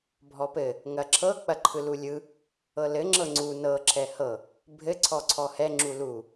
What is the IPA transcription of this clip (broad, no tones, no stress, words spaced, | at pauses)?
bʱɔpɘ | ŋɐǁʰɤ k͡pɐǃʰɯlulʲɯ | ɤlɘ ŋ͡ǁɤŋ͡ǀu nɤ ǁʰɛhɤ | bʱɘ ǀʰɔǀʰɔhɛ ŋ͡ǁulu